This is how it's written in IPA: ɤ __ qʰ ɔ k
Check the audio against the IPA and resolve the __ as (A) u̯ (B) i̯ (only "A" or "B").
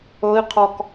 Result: B